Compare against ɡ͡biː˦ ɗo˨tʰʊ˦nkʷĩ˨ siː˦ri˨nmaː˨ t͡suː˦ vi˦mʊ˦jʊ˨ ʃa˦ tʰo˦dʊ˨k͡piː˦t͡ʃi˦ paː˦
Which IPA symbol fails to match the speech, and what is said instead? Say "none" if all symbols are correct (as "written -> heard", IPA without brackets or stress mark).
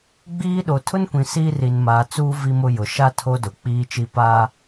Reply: none